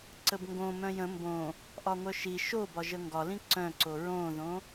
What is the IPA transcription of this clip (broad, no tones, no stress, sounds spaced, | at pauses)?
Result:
ǀ ə b ŋ ɡ õ m œ̃ j ə̃ m b õ | ʔ ɒ ŋʷ œ ʃ i ʃ o b ɒ ʒ ə ŋ ɡ ɒ l ĩ ǀ œ̃ ǀ o ɹ õ ð õ